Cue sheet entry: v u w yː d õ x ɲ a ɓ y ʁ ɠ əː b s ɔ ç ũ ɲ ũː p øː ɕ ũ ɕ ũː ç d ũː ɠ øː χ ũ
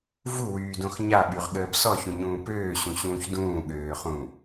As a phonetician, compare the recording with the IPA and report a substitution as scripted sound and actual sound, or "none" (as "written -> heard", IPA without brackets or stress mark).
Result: none